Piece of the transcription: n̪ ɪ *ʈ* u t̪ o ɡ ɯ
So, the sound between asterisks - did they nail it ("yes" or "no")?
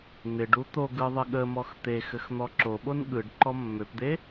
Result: no